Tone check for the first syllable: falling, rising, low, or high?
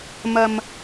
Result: low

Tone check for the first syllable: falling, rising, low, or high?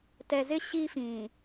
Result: low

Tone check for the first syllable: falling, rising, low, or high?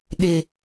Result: low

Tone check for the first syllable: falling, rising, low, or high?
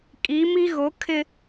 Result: rising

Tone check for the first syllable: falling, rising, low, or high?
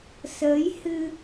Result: rising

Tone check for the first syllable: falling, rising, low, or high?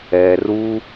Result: low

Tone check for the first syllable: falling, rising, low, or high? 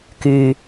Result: low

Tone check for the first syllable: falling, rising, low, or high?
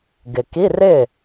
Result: low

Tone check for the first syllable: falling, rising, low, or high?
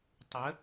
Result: rising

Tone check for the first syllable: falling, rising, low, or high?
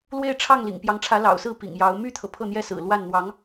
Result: falling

